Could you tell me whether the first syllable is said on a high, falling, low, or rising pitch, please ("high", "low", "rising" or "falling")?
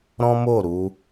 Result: high